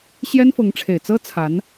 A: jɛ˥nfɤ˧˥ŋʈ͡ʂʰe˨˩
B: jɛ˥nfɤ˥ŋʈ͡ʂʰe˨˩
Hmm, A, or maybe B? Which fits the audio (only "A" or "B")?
A